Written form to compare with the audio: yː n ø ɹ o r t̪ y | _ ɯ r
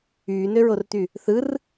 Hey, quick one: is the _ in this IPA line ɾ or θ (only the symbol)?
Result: θ